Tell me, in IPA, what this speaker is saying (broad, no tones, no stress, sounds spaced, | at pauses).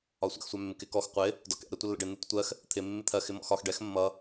ɒ sʷ ɛ̰ x sʷ æ mː ɪ k ɪ k ɔ x qʷ ɪ | d ɒ k ɛ̰ ɾ ɛ tʷ ə lː ə̰ ɖ ɪ n u tʷ ə tʷ ɜ x | t̪ʰ ɪ mː ɪ t̪ʰ ɜ x ɪ m ɔ̰ x ɒ x ɖ ɛ x mː ʌ